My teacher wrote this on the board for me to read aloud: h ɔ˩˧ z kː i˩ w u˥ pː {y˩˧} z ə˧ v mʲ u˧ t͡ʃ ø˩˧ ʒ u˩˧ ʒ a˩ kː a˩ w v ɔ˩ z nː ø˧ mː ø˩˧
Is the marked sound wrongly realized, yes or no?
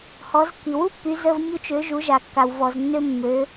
no